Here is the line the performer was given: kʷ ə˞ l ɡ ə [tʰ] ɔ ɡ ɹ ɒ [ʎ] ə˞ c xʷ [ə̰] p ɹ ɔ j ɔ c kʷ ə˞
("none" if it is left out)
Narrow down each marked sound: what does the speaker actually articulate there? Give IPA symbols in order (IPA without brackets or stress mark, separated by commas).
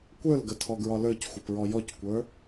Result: tʰ, l, ə